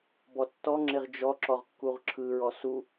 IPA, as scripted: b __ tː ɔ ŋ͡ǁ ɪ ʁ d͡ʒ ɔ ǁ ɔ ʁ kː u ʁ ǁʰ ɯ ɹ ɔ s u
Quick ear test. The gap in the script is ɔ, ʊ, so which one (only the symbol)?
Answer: ɔ